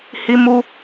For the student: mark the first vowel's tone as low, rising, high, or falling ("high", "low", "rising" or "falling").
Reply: high